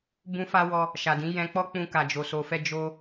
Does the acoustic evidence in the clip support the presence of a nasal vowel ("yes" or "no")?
yes